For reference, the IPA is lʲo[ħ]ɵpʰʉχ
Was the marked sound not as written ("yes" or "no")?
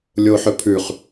no